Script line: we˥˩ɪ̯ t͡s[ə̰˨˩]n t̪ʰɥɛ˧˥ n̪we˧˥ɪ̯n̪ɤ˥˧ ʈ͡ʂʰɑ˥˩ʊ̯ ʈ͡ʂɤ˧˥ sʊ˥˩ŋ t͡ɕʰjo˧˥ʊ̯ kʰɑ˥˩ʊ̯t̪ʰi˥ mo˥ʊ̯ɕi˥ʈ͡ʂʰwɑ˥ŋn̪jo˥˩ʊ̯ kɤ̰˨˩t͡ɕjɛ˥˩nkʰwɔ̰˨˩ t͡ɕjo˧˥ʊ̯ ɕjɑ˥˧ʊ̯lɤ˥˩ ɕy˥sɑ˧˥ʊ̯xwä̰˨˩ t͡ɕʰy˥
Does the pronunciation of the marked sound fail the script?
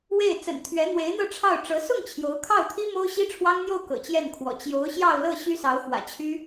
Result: no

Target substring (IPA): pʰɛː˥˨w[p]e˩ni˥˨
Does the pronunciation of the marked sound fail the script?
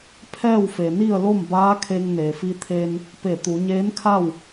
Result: yes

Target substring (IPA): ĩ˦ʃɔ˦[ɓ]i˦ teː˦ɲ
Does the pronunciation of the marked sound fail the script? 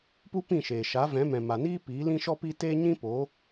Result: yes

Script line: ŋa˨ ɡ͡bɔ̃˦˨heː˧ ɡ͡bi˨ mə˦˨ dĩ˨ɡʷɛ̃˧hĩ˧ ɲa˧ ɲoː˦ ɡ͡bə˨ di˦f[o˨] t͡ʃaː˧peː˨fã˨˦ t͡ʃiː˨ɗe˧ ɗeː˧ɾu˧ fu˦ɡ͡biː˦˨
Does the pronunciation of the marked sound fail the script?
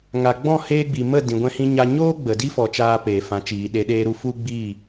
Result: yes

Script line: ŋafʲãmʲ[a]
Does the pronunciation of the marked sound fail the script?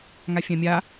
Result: no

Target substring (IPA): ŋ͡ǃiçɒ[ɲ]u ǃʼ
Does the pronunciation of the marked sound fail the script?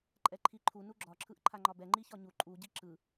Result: no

